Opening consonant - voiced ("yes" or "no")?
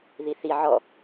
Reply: yes